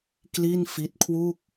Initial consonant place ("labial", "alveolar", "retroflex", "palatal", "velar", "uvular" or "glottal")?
velar